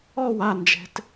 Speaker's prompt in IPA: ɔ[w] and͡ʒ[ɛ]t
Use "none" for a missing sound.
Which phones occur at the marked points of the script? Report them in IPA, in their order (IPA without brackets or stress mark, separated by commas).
w, ɛ̤